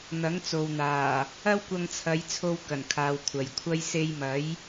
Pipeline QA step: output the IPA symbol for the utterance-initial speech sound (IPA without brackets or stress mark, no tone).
n̪